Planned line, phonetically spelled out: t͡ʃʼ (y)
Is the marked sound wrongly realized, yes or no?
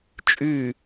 no